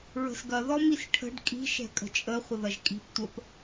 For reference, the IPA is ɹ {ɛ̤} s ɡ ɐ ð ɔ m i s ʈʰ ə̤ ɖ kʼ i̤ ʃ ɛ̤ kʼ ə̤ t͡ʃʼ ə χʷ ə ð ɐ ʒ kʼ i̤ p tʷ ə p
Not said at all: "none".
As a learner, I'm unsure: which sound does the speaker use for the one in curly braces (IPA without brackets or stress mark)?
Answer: ə̤